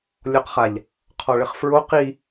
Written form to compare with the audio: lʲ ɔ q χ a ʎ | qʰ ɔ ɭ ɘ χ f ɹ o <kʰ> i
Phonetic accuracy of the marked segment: incorrect: q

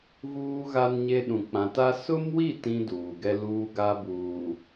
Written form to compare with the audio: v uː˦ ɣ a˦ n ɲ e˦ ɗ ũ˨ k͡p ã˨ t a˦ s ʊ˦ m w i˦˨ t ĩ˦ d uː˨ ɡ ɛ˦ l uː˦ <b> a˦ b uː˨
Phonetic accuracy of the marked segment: incorrect: ɡ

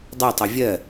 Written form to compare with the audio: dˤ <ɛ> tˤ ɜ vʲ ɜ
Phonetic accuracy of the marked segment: correct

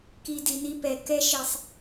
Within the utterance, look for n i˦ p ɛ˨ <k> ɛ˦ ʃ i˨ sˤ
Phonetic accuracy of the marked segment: correct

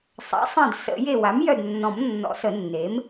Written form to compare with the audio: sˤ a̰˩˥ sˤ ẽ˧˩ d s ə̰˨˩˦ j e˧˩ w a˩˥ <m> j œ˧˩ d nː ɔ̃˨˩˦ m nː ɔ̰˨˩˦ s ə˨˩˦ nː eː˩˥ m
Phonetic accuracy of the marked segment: correct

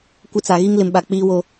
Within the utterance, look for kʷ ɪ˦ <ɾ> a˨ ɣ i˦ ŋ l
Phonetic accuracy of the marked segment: incorrect: t͡s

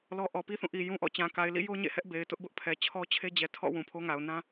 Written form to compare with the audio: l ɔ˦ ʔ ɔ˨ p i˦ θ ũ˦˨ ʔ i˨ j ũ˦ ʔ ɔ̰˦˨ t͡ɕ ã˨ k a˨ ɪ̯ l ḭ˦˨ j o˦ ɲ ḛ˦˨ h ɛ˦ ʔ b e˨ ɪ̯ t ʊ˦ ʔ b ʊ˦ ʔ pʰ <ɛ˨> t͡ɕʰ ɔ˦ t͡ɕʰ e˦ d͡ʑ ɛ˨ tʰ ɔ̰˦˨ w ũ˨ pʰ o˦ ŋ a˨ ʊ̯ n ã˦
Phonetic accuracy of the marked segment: correct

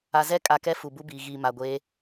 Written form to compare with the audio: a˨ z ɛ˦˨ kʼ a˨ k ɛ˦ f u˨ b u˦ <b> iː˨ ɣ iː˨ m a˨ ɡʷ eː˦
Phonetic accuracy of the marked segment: correct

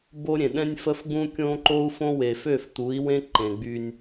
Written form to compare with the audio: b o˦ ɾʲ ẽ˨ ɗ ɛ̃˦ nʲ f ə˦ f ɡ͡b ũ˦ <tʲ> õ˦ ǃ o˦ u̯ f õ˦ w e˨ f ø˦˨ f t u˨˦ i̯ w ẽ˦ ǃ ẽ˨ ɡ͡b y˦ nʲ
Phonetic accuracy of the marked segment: incorrect: kʲ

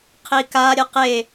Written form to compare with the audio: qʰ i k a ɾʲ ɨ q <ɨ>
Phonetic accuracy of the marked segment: incorrect: e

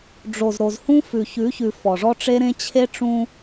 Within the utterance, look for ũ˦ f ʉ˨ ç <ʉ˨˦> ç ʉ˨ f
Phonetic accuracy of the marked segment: correct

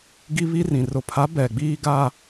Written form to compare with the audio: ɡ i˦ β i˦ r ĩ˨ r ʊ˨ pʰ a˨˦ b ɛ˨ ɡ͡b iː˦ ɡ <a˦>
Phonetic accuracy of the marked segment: correct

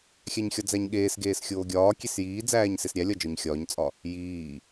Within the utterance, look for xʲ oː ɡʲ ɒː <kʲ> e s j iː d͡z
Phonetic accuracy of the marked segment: correct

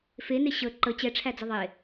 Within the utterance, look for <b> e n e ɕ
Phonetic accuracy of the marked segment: incorrect: f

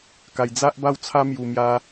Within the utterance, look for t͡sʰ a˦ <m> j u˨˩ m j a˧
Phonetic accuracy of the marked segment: correct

